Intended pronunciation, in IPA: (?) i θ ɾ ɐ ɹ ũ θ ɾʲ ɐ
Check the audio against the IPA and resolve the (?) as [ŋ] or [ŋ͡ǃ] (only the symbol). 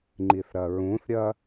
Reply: ŋ͡ǃ